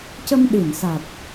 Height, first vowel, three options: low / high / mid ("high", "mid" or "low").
mid